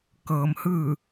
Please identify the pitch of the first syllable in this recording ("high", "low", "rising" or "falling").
low